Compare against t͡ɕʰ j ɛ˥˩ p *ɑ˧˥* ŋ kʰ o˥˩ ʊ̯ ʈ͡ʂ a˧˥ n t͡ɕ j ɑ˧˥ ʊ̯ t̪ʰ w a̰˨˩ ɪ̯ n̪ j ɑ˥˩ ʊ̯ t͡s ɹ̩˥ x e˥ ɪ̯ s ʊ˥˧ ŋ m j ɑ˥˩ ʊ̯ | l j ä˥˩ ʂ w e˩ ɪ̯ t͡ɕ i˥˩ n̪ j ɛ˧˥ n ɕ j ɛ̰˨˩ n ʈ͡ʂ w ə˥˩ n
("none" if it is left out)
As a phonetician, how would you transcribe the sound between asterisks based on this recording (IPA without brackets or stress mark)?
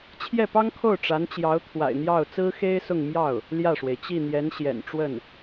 ɑ˥